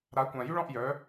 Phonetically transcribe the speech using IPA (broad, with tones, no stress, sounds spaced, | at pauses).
ɾ a˨˦ kʷ ã˨ j y˦ ɭ ɔ̃˦˨ ʔ j œ˨˦